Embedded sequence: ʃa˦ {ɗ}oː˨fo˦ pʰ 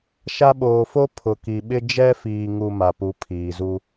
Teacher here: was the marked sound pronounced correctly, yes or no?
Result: no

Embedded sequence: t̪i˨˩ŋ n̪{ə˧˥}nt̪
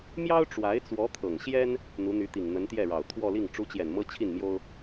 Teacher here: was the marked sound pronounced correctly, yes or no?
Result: yes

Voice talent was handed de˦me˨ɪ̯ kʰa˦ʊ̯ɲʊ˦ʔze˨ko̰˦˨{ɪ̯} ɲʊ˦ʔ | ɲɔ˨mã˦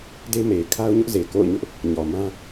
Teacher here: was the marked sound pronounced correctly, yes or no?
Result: no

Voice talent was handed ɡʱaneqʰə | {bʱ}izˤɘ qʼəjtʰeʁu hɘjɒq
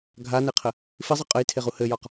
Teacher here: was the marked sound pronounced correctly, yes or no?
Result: no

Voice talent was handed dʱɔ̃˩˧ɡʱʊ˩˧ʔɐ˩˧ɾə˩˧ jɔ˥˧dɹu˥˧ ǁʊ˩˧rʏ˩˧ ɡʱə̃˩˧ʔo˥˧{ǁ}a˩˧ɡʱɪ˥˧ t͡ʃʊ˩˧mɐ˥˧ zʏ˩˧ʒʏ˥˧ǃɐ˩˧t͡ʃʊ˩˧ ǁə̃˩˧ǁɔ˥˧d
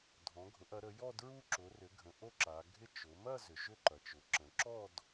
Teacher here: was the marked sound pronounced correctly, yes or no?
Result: yes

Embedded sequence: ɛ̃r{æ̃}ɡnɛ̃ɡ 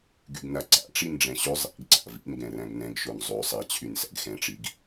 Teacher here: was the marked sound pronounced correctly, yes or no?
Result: yes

